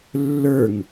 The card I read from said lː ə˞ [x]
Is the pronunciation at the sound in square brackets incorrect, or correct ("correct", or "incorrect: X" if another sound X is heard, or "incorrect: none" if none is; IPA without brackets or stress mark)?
incorrect: ŋ